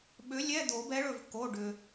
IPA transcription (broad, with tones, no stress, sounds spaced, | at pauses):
ɓ ʏ˨˥ lʲ ɛ˧˥˧ d̪ o˨˩˦ b ɛ˨˥ ɭ ɵ˩ v k o˩˧˩ ɖ ʏ˩